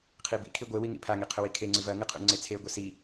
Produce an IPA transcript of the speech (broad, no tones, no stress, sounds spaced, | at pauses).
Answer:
qʰ i b ḭ kʰ i ɡʷ e w i ŋ ḭ pʰ a ŋ i qʰ ɵ w i kʰ e ŋ͡ǀ ɨ v ɐ ŋ ɨ qʰ ṵ ŋ͡ǀ e t͡sʰ e ɡʷ ɐ s i